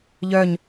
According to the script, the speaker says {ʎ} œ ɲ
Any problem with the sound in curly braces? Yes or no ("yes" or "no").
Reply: no